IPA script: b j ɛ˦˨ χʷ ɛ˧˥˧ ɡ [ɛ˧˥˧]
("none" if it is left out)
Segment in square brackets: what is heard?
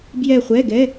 ɛ˧˥˧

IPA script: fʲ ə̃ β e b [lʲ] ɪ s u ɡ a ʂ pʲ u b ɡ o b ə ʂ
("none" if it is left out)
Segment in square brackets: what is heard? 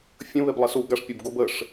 lˠ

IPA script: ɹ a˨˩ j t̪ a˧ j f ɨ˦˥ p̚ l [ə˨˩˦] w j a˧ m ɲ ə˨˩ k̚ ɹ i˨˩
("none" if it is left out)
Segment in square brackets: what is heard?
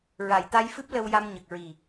ə˧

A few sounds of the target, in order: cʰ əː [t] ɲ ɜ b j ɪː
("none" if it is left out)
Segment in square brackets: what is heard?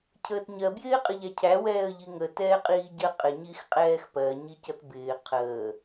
t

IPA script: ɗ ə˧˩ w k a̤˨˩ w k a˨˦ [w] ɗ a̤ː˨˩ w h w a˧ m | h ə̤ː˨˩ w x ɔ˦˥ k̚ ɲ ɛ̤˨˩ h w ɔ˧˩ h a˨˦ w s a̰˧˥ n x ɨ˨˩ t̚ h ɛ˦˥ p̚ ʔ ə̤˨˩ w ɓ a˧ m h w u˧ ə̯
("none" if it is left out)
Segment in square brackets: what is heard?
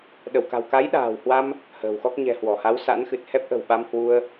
j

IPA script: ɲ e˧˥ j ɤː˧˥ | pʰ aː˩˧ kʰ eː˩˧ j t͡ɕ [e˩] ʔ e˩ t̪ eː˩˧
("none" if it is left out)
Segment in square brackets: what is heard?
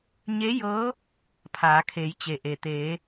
e˩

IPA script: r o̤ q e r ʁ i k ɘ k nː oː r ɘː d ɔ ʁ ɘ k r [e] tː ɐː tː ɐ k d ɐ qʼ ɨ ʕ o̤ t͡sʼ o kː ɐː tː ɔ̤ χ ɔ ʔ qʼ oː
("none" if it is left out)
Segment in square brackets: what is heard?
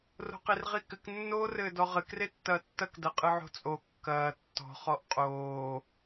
e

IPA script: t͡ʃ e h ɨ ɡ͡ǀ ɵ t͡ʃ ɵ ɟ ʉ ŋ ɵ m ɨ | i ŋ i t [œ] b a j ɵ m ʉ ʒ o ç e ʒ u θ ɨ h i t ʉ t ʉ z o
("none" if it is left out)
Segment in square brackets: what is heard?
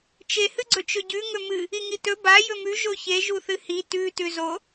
ɵ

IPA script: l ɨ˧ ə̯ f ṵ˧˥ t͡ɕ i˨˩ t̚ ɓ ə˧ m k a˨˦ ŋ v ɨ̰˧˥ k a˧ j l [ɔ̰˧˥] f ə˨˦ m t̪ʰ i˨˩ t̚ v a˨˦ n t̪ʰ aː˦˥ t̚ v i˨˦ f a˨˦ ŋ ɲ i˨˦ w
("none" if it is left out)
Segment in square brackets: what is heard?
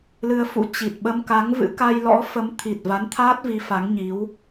ɔ̰˧˥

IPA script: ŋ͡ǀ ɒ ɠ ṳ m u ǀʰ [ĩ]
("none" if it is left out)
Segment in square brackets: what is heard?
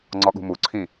ĩ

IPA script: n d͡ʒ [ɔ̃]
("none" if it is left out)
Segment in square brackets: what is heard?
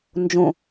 õ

